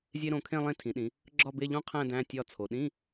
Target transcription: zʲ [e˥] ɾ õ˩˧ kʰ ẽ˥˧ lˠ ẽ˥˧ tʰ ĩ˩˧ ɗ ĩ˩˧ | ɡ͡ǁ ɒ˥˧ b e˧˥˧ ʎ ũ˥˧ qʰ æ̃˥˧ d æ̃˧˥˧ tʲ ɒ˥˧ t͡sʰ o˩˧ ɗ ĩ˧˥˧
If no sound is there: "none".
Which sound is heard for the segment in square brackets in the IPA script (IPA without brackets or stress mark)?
e˥